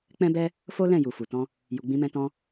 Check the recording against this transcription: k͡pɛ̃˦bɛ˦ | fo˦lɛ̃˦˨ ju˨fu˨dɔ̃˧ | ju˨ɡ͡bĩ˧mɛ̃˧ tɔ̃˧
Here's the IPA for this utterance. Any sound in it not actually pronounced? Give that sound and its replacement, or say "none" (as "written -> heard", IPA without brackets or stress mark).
d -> t